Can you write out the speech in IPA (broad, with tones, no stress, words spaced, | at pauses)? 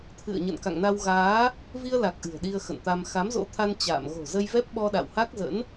t̪ʰɨ̰˧˨ə̯ɲə̰˧˨nka̰˧˨ŋna˧w ɣaː˨˦ | vi˧ə̯la˨˩k̚ ʔɨ̤˨˩ə̯ɗi˧ə̯xə̰˧˨nt̪a˧m xa˨˦mzo̰˧˥t̪ʰa˧n t͡ɕa̰ː˧˨m ɣo̤˨˩ zə˧jvɛ˦˥p̚ɓɔ˧ɗa̰˧˨w ha˦˥k̚zə̰˧˥n